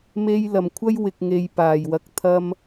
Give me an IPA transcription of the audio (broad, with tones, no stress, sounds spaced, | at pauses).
m e˧ j l ɐ˨˩ m kʷʰ ɐ˥ j w ɪ˨ k̚ ŋ e˨ j p aː˨˩ j w ɐ˨˥ k̚ t̪ʰ ɐ˥ m